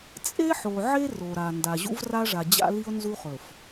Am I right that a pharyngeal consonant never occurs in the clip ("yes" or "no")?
no